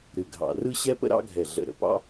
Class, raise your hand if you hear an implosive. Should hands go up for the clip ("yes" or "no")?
no